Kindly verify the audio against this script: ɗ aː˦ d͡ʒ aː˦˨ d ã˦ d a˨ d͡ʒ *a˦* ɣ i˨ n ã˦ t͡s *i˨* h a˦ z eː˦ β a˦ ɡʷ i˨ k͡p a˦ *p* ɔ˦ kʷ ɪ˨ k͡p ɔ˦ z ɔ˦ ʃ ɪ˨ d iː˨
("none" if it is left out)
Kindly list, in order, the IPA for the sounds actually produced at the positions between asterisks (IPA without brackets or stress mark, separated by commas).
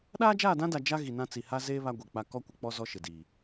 a˦, i˨, k